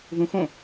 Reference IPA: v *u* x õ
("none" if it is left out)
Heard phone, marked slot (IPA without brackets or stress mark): ũ